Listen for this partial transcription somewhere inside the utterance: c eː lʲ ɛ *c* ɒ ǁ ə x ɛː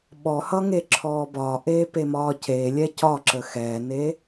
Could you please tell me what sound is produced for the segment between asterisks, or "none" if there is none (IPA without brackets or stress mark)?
c